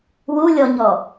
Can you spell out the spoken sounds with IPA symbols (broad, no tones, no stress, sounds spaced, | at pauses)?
w u lʲ ɔ ɲ ɔ